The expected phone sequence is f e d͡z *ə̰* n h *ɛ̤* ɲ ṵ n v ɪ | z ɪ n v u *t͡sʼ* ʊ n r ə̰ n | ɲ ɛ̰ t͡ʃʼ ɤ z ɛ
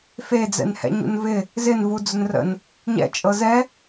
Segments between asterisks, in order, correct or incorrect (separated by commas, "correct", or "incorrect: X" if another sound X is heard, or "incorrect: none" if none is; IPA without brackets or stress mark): incorrect: ɛ̰, incorrect: ɛ̰, incorrect: d͡z